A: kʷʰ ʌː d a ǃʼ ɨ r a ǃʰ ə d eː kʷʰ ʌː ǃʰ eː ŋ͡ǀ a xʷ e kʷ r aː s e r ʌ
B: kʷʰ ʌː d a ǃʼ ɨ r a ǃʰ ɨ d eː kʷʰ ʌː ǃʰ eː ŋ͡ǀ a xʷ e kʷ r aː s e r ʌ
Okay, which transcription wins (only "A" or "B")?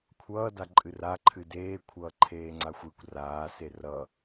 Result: B